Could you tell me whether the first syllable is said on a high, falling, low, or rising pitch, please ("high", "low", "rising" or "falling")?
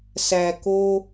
low